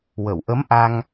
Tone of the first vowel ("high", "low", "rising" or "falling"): low